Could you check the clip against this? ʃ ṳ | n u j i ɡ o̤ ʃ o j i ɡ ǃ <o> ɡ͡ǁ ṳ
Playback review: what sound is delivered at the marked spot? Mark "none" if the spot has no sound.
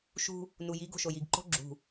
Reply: o̤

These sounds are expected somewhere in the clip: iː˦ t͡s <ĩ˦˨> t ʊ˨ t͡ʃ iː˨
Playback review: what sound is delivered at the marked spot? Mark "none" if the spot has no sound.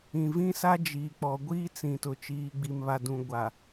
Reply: ĩ˨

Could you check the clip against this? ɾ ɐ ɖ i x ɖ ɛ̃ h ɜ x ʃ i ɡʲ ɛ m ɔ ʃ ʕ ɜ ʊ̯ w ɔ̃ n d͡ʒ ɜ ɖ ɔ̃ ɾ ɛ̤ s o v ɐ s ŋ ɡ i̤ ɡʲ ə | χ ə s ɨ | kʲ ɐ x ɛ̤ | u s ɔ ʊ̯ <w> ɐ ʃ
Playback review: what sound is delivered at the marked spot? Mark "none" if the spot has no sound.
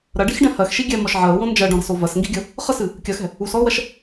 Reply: w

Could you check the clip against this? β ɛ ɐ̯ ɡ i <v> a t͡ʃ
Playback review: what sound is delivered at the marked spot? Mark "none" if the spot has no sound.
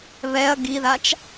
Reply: ð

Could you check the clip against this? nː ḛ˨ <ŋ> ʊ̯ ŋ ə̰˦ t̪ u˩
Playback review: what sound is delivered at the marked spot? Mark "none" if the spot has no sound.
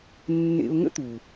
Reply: none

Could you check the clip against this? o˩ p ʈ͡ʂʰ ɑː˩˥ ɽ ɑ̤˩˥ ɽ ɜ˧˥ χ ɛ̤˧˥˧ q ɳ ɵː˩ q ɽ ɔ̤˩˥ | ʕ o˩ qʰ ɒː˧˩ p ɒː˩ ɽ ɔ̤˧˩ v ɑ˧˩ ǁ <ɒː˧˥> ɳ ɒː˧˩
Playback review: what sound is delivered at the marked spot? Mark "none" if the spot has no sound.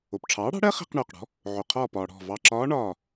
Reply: ɒː˧˥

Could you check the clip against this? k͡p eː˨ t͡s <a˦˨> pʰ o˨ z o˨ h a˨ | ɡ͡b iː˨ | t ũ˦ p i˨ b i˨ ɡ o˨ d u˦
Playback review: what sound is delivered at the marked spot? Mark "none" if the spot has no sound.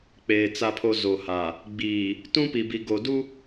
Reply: a˨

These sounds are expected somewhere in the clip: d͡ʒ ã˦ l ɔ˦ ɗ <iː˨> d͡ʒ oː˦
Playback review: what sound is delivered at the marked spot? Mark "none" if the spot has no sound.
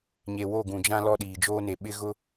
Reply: iː˨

